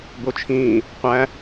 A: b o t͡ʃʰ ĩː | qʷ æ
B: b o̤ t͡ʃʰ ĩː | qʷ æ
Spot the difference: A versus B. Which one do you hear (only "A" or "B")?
A